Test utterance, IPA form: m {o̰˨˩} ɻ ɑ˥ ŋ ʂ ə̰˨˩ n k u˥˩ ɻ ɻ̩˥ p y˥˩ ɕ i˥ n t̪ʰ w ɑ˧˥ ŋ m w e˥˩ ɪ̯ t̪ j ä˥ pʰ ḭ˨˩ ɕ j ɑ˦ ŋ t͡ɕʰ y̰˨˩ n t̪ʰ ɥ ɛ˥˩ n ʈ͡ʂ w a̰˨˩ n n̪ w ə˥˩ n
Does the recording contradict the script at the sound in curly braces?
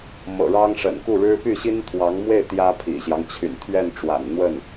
yes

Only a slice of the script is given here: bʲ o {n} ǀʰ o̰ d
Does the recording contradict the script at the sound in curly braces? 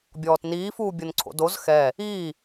no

